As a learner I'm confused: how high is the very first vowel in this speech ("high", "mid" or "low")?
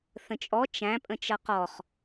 mid